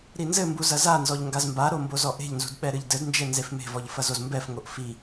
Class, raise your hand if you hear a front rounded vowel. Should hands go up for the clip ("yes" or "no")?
no